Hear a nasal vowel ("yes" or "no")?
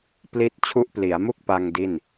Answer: no